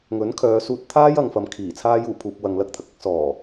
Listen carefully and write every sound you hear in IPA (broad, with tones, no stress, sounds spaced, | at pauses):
ŋ ɵ˨˥ n kʰ œː˨˧ s uː˧ t̚ t̪ʰ aː˥ j ɐ˧ ŋ f ɐ˨ m kʰ iː˨˩ t͡sʰ aː˧ j uː˨˩ pʰ uː˨ p̚ w ɐ˨ ŋ l ɐ˧ k̚ t̪ʰ ɐ˨ k̚ ɐ˧ k̚ s ɔː˨˩